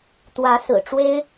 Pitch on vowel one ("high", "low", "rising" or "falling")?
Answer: rising